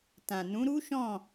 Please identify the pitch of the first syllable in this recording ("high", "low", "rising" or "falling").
low